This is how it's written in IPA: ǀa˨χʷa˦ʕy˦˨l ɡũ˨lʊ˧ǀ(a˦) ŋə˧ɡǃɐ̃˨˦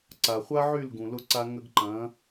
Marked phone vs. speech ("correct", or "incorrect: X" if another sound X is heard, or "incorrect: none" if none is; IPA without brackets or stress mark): incorrect: a˧